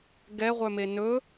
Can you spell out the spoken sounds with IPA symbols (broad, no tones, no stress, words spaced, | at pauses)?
ɡɛʁʷœme nɵ